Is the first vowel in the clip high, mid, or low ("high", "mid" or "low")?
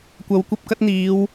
low